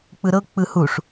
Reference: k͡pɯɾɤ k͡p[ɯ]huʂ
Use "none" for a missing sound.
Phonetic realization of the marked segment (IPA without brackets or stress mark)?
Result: ɯ